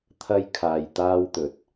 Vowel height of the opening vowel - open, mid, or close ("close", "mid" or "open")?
open